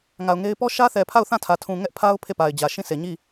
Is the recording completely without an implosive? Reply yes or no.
yes